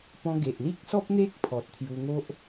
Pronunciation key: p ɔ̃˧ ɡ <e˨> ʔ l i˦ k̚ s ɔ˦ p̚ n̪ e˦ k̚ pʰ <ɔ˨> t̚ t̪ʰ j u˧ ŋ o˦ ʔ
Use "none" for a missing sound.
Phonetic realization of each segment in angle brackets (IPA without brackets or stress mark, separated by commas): e˨, ɔ˨